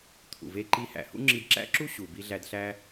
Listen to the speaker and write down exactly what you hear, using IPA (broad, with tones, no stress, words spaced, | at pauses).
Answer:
t̪ʰṵ˩ve˧ǃi˧ hæ̰˩hṵ˥ ŋ͡ǁi˧dǁæ̰˥ǁu˥ ɕu˩bi˧ ɮæ˧d ɬæ˧